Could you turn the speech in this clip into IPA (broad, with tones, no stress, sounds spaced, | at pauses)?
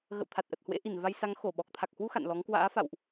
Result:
ɣ ə̰˧˨ w t̪ʰ a˨˩ t̚ ʔ ə˨˩ t̚ h w ḛ˧˥ ʔ i˧˩ n v a˧ j s a˨˦ ŋ x o˧˩ ɓ ɔ˨˩ k̚ t̪ʰ a˨˩ k̚ h w u˧ x a̰˧˨ n l ɔ˨˦ ŋ k w a̰ː˧˥ f a̰˧˨ w ʔ